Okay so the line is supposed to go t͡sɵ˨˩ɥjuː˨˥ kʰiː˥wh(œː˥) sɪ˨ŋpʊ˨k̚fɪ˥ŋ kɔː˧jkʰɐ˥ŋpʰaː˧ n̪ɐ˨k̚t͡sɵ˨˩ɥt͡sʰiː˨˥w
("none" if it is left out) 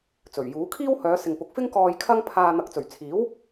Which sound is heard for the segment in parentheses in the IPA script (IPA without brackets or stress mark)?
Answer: œː˨˧